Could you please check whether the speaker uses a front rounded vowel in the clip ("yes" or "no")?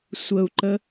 no